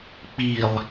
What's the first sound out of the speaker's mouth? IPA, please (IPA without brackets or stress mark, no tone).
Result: k͡p